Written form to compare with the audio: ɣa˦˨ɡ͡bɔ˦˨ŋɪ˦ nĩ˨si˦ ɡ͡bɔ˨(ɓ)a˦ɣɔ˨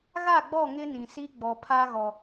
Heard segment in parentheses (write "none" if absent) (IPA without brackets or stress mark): pʰ